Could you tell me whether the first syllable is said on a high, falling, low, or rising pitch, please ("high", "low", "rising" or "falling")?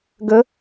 rising